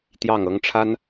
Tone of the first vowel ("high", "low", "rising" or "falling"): falling